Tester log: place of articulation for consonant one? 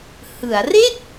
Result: glottal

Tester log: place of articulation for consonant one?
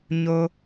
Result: palatal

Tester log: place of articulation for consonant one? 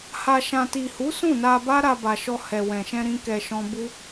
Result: glottal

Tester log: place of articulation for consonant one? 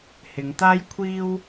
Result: glottal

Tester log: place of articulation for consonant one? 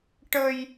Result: retroflex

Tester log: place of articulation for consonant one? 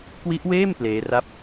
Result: velar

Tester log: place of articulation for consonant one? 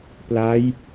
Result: labial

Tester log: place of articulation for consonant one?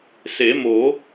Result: alveolar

